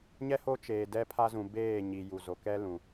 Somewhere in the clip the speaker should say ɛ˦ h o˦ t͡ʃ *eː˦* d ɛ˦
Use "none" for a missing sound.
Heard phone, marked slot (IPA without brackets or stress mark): eː˨